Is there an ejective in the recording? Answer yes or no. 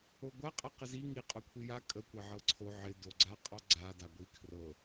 yes